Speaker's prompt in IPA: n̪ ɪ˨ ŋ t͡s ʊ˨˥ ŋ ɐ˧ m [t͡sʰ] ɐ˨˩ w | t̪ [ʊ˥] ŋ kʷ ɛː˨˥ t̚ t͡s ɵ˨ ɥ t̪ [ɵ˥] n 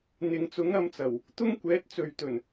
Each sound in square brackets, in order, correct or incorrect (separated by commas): incorrect, correct, incorrect